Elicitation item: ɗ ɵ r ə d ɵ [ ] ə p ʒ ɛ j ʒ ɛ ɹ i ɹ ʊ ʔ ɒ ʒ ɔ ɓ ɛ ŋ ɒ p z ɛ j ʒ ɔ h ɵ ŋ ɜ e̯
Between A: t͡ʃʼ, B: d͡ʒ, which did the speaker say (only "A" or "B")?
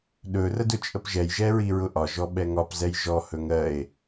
A